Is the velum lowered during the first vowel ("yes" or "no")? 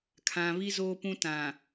yes